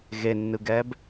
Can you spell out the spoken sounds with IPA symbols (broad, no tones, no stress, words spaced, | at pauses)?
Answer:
ɣenːɯɡɛb